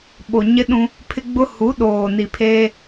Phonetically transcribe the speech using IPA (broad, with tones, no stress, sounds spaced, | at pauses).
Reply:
ɓ o˨ ɲ ɪ˦ ɗ ũ˦ | pʰ ɪ˦ ɡ͡b ʊ˦ h u˨˦ ɗ oː˨ n i˨ pʰ eː˦